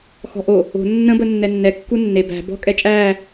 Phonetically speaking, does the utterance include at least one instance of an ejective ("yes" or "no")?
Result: yes